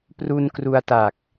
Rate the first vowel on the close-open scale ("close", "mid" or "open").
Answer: close